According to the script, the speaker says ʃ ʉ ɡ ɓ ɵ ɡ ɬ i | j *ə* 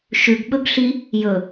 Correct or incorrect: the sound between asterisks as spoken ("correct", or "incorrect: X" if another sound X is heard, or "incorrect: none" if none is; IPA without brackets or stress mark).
incorrect: ɵ